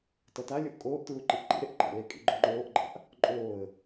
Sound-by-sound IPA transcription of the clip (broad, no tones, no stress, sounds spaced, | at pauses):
t ʌ t a lʲ o ʔ kʼ oː ʔ t ɹ u ǃ i ʔ ǃ ḭ ɾ e ʔ ǃ a̰ l e kʼ ḭ ɡ͡ǃ o ŋ͡ǃ oː ʔ ɡ͡ǃ a̰ ʔ | ǃʼ oː ə̯